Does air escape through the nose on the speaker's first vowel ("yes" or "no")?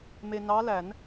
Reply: no